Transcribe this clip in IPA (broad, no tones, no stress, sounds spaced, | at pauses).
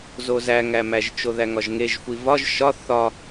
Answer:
z o z æ ŋ æ m æ ʒ t͡ʃ o ð æ ŋ ɒ ʒ ŋ e ʒ xʷ i v ɒ ʒ ʃ ɒ θ ɒ